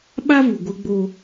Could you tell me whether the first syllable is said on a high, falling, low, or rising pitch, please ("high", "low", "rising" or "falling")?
high